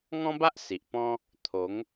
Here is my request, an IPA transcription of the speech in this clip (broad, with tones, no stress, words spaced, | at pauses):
ŋɔ̃˦ba˦ʔ si˨ʔpɔ̃˦ | t̪ʰo˨˦ŋ